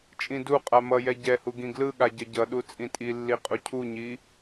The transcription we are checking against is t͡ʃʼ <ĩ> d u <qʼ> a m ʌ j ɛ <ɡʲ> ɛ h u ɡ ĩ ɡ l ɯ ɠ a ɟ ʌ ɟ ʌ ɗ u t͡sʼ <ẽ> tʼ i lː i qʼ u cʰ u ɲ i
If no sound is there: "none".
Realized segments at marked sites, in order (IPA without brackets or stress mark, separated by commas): ĩ, qʼ, ɟ, ĩ